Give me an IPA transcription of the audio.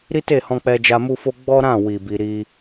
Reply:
ɾ i˦ t e˦˨ h ɔ̃˧ k͡p ɛ˧ d͡ʒ a˧ m u˦ f o˦ ɡ͡b ɔ˦ ɾ ã˦˨ w i˨ b i˧ ɾ i˦

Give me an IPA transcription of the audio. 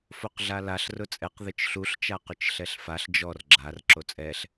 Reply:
f o q ɮ a l a ɬ r ʊ t͡sʼ ɛ q ð ɪ t͡ʃ ɬ u ɬ t͡ʃ a q ʊ t͡ʃ ɬ ɛ ɬ f a ɬ d͡ʒ ɔ r ɡ͡ǁ a r ǁ o t͡sʼ ɛ ɬ

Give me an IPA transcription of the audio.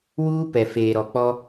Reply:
w uː˦ p ɛ˨ f eː˨ ɾ ɔ˨ k͡p ɔ˦

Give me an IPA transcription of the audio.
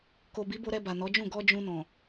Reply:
k o˨ b i˨˦ b o˧ ɾ ɛ˧ b a˨ n ɔ˨˦ d͡ʒ ũ˦˨ ɡ ɔ˧ d͡ʒ ũ˧ n ɔ̃˨

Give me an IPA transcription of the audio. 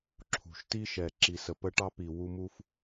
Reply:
ǁʰ ṳ˨ ʃ t i˦ ʃ ɛ˨ ǁ i˨ s ə˨ p ə˦ ʈ ɑ˦ p i˨ w u˦ m u˦ f

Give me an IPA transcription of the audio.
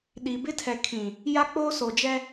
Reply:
ɗ i˨ b ɪ˦ tʰ ɛ˨ kʰ ĩ˨ | j a˦ k͡p oː˦ s o˨ d͡ʒ ɛ˦

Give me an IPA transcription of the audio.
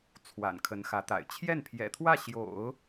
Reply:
t͡sʰ w a̰˨˩ n kʰ ə˧˥ n x ä˧˥ t̪ a̰˨˩ ɪ̯ t͡ɕʰ j ɛ˥˩ n pʰ j ɛ̰˨˩ t̪ʰ w ä˥˩ ɕ j o̰˨˩˦ ʊ̯

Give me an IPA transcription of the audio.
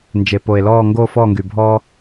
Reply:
n d͡ʒ e˩ p o˩ e̯ l ɔː˦˨ ŋ ɡ oː˦ f ɔː˦˨ ŋ ɡ y˩ bʱ ɔː˦

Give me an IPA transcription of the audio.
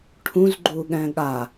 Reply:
ʈʰ ũ z ɡ͡ǃ u ɠ ɛ̃ ɠ a

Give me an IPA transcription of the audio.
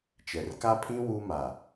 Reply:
t͡ʃ ɛ˨ r k a˦ pʰ ĩ˦ w u˦ m a˨

